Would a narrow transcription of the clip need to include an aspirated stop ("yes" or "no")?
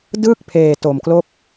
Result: yes